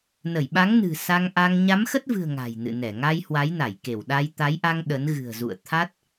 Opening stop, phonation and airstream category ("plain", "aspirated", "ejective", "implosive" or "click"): implosive